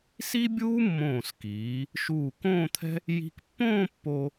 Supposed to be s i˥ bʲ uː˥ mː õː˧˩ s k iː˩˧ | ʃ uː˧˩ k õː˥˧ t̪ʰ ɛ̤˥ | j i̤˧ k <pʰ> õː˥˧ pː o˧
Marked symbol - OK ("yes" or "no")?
no